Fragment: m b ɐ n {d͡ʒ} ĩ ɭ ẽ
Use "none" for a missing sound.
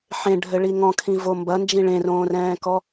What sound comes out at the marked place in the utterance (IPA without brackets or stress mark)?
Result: d͡ʒ